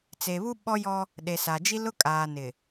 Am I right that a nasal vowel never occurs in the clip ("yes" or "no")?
yes